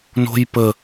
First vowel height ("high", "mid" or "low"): mid